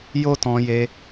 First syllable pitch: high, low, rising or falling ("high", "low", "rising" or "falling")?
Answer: high